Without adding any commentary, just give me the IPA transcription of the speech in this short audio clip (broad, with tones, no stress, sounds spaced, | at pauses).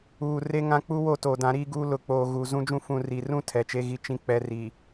uː˨ r e˦ ŋ ã˦ k͡p u˦ w o˦˨ t oː˨ d ã˨˦ ɾ iː˦ ɡ uː˦ l ʊ˨ k͡p oː˨ ɣ u˨ z ũ˦ d͡ʒ ũ˦ f ũ˨ r i˨ r ũ˦ tʰ ɛ˨ t͡ʃ e˦ ɣ i˦ t͡ʃ ĩ˦ k͡p ɛ˨˦ r iː˨